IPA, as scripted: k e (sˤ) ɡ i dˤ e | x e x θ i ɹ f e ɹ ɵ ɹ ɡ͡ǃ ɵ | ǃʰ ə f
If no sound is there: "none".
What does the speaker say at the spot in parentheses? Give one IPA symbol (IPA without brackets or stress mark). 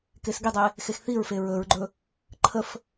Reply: s